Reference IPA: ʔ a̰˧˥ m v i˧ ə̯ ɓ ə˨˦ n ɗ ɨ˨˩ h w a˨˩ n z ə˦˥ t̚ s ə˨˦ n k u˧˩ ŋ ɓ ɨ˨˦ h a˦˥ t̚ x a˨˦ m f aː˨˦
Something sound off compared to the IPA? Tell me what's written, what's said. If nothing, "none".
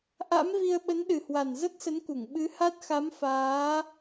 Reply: none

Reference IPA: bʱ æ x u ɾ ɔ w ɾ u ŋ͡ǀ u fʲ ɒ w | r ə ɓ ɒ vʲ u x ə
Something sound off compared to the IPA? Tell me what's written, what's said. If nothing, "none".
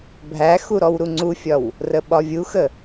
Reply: none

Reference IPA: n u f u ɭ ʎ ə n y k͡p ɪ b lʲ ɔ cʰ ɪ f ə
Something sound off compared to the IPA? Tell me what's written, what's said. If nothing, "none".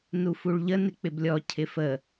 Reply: y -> ɪ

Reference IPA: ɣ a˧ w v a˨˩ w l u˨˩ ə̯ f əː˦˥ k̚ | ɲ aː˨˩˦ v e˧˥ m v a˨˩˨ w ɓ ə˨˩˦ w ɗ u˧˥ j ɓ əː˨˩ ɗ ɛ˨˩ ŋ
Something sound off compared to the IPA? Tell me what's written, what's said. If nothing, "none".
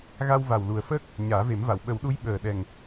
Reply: e˧˥ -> e˨˩˦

